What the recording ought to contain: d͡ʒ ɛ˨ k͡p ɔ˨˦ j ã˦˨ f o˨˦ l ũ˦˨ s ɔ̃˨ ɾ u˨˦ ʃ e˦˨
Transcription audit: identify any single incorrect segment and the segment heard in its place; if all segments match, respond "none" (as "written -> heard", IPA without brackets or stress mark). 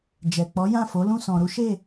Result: none